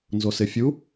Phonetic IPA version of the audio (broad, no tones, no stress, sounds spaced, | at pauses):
n z o s ɪ fʲ u